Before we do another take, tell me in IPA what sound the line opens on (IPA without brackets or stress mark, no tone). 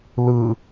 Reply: l